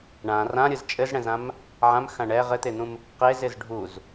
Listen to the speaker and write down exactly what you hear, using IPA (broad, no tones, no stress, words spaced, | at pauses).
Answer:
ɳã rãɾʲɯz t͡ʃʼɘzɽɛ̃zãm | ʕãmxã ɳɛ ʁɘt̪en̪ũm | qezɪz ɖʱuz